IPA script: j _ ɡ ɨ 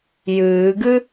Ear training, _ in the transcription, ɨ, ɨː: ɨː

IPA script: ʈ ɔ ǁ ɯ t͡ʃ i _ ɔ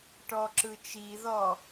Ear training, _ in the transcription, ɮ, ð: ð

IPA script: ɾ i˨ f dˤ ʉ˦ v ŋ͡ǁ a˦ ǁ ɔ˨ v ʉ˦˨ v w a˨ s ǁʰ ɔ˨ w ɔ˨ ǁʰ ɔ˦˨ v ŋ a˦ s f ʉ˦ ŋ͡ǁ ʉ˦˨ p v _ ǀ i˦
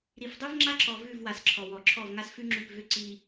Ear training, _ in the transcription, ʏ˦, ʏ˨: ʏ˦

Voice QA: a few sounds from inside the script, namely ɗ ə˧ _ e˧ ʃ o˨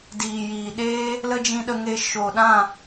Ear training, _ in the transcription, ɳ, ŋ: ŋ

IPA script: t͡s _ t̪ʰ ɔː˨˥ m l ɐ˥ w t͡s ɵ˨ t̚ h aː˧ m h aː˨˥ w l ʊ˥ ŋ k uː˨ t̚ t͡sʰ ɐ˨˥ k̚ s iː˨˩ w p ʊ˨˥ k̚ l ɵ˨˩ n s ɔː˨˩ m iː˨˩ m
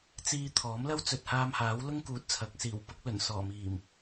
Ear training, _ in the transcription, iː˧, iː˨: iː˧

